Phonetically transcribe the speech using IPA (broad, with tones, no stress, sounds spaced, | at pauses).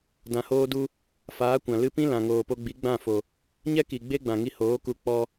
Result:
d ã˨ h oː˧ d u˧ | f aː˨˦ kʷ ã˨ l ɨ˧ p ĩ˦ l ã˨ ŋ oː˨ p o˧ ɡ͡b i˨˦ ɡ͡b ã˦˨ f o˨ | ɲ ɛ˦ k i˨ ɡ͡b e˦ ɡ͡b ã˨ ŋ i˧ h oː˨˦ k u˧ k͡p ɔ˦